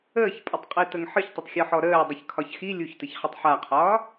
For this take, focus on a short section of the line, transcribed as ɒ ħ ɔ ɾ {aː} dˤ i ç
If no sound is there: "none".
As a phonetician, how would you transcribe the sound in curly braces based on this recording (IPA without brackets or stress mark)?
əː